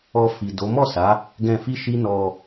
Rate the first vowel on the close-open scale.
mid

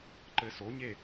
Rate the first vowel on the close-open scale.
mid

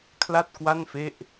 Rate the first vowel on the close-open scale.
open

